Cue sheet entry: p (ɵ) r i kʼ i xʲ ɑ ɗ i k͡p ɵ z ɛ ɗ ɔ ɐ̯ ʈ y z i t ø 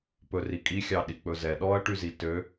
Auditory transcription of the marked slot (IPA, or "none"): ɵ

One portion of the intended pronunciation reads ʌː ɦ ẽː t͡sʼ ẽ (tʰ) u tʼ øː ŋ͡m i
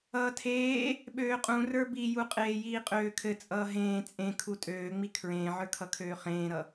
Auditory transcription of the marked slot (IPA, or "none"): kʰ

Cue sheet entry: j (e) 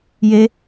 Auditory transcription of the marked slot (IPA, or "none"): e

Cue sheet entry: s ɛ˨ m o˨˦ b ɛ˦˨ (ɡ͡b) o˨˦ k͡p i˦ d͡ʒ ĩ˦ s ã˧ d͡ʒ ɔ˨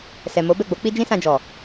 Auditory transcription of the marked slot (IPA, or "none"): ɡ͡b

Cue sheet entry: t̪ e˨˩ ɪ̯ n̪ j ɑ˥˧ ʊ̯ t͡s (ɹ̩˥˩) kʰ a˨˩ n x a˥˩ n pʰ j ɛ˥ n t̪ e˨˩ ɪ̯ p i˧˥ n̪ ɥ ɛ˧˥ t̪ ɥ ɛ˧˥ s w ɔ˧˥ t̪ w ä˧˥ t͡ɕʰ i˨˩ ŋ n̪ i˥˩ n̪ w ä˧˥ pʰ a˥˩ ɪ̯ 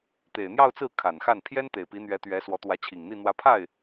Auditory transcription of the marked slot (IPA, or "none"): ɹ̩˥˩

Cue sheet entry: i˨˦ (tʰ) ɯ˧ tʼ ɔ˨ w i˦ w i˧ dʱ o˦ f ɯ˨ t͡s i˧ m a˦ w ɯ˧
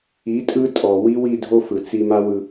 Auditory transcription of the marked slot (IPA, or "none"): tʼ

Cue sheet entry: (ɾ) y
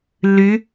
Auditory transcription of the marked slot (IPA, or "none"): lː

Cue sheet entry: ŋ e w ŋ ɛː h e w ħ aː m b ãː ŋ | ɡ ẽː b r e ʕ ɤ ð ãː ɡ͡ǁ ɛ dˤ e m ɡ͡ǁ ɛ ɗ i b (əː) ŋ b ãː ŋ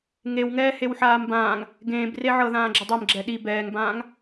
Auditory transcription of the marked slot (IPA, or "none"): ɛː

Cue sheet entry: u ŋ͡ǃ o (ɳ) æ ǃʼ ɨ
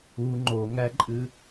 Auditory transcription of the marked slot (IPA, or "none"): ŋ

